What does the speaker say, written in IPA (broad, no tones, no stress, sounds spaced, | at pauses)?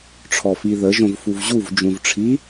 ʈ͡ʂʰ ɔ f i ð ə ʒ õ v f u v ʑ u v d͡ʒ ũ v ʈ͡ʂʰ i